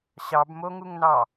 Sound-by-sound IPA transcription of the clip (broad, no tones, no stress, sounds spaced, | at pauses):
ɕ ɑ b m o ŋ u ŋ n ɑ